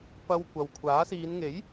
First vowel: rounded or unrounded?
unrounded